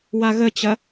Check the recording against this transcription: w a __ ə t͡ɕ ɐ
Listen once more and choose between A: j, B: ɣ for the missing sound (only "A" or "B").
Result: B